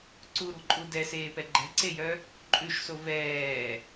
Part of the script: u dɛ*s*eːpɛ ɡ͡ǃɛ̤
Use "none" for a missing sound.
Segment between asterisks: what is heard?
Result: s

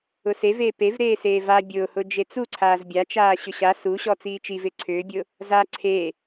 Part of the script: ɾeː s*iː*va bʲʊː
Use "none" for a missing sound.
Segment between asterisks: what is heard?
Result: eː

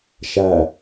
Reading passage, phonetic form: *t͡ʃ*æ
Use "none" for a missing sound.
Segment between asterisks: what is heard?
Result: ʃ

